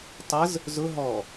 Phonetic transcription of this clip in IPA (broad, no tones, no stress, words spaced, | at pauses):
tˤəz | zʊ ɦɔ